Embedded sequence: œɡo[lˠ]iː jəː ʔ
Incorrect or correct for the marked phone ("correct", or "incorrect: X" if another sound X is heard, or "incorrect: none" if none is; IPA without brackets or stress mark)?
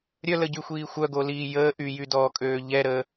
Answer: incorrect: l